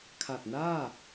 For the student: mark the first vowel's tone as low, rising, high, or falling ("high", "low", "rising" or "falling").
low